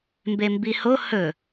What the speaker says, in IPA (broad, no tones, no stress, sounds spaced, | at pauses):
m b e m b i h o h ɵ